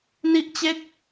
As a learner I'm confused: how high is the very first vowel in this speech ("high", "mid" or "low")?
high